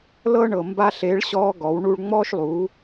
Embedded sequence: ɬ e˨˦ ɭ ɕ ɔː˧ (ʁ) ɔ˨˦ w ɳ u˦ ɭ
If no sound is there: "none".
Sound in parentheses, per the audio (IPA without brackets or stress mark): ɡ